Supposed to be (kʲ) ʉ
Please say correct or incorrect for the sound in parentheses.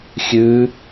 incorrect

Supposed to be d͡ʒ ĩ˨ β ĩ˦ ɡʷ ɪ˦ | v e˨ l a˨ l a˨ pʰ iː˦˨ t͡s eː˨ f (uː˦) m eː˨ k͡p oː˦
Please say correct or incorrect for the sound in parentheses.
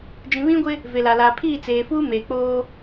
correct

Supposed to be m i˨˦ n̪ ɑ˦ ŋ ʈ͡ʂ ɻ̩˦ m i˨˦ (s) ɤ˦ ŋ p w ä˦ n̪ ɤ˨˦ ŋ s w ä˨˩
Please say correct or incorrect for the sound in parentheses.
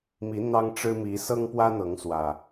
correct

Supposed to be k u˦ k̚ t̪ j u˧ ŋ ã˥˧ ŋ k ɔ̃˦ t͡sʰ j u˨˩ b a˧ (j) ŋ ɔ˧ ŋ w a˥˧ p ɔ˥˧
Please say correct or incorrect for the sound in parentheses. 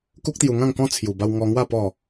incorrect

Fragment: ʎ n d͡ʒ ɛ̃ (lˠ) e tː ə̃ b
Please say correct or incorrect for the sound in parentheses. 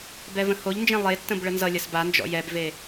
correct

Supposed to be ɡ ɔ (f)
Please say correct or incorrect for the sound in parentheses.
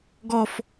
correct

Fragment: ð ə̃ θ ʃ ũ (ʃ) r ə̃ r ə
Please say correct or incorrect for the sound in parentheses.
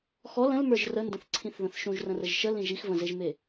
incorrect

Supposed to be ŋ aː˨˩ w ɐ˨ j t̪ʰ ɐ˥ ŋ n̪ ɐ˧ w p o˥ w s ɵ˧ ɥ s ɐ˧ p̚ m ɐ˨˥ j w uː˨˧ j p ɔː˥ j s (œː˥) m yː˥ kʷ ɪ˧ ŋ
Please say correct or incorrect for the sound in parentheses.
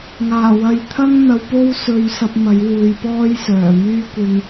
incorrect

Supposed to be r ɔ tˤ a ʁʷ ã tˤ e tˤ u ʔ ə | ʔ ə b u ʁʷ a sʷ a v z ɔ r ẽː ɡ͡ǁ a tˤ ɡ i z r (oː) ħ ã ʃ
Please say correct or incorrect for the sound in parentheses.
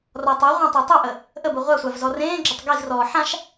incorrect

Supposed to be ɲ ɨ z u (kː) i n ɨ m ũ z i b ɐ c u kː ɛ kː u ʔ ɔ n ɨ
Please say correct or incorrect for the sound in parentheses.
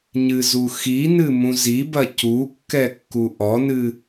incorrect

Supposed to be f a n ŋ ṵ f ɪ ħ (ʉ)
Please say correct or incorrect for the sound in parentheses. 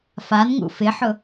incorrect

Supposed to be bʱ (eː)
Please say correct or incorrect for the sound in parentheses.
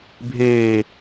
correct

